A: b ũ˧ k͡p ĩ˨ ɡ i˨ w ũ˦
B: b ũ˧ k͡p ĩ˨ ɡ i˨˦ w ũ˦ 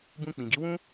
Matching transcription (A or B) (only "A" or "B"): B